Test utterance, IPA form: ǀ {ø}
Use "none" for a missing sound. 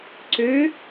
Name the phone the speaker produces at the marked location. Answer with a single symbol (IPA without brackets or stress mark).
ø